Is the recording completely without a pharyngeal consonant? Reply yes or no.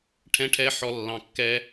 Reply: no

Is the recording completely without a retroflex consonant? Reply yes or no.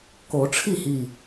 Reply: no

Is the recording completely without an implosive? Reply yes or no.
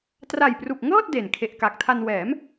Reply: yes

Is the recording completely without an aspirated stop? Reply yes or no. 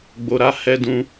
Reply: yes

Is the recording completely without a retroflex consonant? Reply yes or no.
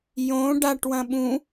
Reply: no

